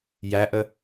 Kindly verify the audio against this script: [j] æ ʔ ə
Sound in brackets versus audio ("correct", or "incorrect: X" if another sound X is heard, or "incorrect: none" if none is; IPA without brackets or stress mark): correct